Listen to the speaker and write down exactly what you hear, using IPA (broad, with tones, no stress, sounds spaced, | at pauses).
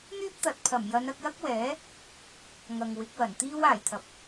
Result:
n̪ yː˥ p̚ t̪ ɐ˨˥ t̚ pʰ ɐ˨˩ m j ɐ˨˧ n ɐ˧ k̚ j ɐ˥ k̚ w ɛː˨˥ | ŋ ɐ˨ ŋ w ɪ˨˥ k̚ w ɐ˨˩ n t̪ iː˥ w aː˨˩ j t̪ʰ ɐ˨ p̚